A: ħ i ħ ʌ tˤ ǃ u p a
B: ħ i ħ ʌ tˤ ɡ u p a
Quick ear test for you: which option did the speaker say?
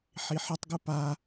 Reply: B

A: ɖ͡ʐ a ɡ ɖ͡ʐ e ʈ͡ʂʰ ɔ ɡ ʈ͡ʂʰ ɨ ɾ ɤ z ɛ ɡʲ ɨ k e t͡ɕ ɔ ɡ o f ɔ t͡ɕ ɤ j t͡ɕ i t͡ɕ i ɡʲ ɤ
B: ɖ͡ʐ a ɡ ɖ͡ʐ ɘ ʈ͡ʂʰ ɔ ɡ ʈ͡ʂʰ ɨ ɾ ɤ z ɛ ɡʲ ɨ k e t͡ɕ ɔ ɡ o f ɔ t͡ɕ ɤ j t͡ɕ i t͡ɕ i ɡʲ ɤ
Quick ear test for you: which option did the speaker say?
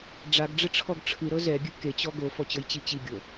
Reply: B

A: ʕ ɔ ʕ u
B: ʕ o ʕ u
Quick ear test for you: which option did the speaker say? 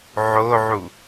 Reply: B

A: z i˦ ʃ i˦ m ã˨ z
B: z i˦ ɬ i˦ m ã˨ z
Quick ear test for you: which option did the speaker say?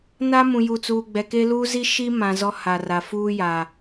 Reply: A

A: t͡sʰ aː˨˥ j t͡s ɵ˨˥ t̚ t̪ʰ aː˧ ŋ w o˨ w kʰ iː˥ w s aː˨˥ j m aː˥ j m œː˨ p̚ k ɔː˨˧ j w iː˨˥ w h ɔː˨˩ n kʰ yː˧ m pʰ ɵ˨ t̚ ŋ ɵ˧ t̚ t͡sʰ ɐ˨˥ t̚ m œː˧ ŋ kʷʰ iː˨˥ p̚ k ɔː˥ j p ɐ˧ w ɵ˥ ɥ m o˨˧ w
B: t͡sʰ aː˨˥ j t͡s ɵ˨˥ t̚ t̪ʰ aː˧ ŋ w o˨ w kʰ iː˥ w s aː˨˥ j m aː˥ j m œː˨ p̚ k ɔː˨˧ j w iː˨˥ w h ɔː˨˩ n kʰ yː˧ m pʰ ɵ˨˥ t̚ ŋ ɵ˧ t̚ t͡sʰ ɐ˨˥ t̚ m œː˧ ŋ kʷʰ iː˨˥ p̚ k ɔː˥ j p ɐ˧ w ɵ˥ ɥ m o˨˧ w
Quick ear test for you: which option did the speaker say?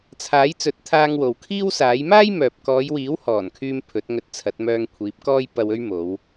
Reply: B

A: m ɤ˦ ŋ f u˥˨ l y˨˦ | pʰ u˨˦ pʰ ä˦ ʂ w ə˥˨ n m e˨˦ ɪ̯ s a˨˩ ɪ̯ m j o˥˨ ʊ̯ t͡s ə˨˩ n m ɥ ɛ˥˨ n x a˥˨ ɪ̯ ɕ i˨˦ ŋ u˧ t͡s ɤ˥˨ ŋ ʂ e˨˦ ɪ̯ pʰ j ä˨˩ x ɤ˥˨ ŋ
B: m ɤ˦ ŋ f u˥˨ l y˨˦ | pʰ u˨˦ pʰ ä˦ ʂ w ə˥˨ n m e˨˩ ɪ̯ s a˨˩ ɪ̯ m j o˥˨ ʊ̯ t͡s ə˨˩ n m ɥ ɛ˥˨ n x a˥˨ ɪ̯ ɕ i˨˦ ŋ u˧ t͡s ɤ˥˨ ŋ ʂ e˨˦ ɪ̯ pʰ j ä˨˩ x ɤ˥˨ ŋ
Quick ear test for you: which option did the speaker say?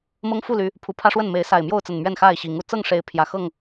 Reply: A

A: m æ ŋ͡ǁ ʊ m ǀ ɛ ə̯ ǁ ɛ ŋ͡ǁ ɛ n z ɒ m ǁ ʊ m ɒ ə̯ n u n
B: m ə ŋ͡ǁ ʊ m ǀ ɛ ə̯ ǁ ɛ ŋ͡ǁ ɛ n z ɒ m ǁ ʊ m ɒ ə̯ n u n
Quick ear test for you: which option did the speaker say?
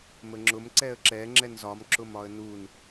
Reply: B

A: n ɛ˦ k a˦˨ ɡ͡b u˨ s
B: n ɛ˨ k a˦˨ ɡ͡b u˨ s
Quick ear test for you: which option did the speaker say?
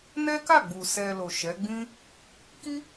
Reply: A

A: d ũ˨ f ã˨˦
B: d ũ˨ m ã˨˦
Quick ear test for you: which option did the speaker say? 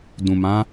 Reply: B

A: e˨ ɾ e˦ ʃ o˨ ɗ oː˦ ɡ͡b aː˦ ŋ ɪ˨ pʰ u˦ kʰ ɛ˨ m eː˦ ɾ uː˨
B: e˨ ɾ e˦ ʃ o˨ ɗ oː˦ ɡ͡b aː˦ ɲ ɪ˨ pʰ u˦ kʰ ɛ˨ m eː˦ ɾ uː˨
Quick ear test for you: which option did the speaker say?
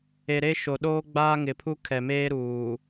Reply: A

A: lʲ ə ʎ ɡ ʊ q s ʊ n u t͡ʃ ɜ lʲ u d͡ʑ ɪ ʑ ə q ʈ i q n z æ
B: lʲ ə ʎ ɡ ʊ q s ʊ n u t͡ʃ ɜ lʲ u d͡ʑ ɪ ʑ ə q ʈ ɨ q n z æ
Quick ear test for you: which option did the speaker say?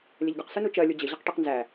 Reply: A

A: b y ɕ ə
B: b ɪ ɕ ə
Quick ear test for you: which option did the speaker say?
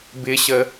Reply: B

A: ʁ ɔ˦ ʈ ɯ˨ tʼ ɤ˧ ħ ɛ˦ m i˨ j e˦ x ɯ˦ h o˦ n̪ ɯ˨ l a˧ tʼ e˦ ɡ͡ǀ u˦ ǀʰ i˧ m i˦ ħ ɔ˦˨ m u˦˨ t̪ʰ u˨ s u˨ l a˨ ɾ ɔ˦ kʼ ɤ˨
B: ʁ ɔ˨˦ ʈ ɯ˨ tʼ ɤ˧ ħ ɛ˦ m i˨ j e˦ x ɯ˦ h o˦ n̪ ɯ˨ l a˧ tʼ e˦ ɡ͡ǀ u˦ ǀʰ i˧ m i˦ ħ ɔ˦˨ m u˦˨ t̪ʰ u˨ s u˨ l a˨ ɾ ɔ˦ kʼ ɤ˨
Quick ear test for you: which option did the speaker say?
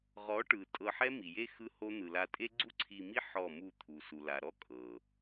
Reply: B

